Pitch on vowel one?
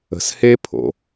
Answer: low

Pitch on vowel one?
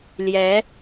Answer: rising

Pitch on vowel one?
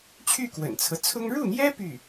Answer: falling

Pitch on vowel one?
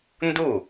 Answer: falling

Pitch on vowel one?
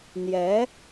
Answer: rising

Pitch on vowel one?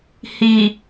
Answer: low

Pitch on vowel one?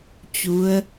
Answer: rising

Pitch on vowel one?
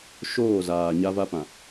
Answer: falling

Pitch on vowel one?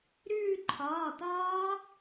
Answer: falling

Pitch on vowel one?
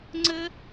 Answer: high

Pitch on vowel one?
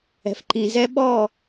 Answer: low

